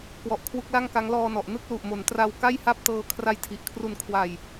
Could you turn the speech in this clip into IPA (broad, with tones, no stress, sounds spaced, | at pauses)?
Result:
k w ɔ˨˩ ʔ kʰ w u˦˥ k̚ l a˥˩ ŋ k a˦˥ ŋ l ɔː˧ n ɔ˨˩ ʔ n ɯ˥˩ k̚ l u˨˩ ʔ m o˩˦ n t r a˧ w k a˥˩ j h a˥˩ p̚ t ɤː˧ kʰ r a˦˥ j tʰ i˨˩ ʔ kʰ r u˧ n kʰ w a˧ j